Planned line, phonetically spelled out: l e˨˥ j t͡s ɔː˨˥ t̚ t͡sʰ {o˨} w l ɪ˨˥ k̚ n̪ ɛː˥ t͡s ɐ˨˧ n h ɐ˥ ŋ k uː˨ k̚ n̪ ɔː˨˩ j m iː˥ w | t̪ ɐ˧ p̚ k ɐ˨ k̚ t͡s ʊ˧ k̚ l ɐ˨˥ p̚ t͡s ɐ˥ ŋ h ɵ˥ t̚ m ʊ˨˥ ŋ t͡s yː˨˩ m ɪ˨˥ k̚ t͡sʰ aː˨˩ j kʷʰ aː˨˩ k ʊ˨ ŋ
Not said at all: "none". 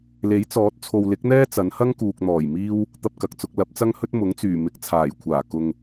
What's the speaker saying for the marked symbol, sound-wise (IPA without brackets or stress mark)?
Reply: o˨